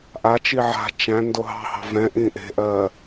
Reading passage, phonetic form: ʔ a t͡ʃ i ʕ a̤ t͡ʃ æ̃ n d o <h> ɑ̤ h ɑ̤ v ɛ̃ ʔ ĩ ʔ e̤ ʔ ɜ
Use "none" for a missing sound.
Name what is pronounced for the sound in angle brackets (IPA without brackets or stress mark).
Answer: ɦ